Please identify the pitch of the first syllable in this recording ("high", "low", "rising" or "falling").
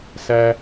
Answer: high